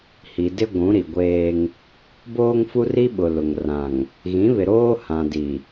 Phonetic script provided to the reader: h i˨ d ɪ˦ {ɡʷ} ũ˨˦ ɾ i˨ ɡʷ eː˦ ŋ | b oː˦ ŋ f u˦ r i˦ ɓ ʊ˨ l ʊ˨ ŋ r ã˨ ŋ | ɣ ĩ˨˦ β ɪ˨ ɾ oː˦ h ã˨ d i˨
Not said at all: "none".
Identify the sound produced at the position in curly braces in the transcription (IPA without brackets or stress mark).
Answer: ɡʷ